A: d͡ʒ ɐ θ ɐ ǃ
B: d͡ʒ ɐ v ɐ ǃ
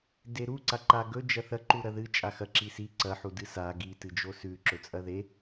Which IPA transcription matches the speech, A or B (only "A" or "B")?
A